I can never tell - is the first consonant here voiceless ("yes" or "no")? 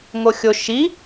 no